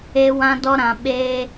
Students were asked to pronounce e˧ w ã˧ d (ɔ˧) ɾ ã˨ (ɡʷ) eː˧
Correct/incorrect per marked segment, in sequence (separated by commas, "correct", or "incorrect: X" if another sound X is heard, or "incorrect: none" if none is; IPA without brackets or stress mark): correct, incorrect: ɓ